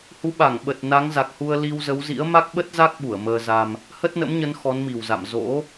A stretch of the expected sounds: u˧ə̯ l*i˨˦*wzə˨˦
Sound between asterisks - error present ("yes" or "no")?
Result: yes